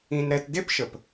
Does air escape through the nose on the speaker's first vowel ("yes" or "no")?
yes